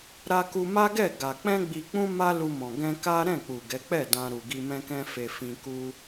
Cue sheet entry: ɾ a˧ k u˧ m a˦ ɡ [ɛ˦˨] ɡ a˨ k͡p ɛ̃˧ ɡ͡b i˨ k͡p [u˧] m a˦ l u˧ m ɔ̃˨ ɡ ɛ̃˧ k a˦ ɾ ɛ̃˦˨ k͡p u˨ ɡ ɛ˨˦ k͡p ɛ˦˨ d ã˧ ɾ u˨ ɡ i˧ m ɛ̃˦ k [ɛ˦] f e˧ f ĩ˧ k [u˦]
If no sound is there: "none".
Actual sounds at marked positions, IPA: ɛ˦˨, ũ˧, ɛ̃˦, u˦

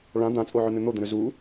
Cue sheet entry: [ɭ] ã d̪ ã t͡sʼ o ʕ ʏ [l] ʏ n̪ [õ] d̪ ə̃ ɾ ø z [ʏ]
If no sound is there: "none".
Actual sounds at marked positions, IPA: ɭ, n̪, o, u

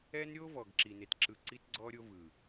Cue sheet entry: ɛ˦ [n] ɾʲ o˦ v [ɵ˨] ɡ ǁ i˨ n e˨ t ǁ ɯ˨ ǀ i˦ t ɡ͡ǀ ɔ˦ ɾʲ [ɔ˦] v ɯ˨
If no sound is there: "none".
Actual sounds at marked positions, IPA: n, ɔ˨, o˦

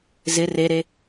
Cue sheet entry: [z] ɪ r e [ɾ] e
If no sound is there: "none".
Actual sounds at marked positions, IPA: z, ɾ

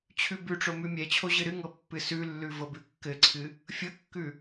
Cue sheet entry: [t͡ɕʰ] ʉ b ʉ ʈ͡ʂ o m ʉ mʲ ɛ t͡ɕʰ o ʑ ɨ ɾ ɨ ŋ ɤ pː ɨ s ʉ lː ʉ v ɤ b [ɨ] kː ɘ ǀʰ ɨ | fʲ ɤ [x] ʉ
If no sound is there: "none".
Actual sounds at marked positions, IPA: t͡ɕʰ, ʉ, kː

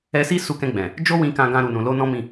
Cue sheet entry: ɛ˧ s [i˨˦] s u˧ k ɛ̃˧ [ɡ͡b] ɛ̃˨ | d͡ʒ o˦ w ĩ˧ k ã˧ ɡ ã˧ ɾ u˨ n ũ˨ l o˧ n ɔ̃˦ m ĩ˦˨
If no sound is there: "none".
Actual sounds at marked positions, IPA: i˦, ɡ͡b

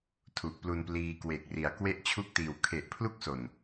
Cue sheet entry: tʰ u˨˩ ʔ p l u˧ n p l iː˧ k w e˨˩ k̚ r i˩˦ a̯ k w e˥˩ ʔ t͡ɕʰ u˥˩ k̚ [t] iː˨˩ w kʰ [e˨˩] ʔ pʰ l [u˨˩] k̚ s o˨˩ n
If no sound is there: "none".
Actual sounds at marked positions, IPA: t, e˨˩, u˥˩

